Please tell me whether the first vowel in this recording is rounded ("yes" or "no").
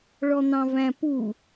yes